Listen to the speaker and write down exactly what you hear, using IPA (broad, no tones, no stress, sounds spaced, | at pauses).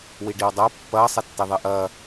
w i ɖ i w dˤ a pː ɐː sˤ e tː e ðˤ e ʔ ɐː